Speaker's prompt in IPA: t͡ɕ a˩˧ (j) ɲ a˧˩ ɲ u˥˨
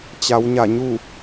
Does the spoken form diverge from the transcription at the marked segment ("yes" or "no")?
yes